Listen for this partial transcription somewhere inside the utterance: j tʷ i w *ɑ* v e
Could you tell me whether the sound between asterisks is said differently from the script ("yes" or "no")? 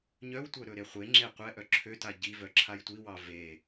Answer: no